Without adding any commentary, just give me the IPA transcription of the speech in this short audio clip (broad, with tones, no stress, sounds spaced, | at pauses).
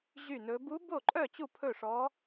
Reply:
ʑ y˥˩ n ɵ˧˥ b u˧˥ b o˥˩ ǃʼ œ˥˩ t͡ɕ u˥˩ pʰ ɵ˥˩ ʂ ɔ˧˥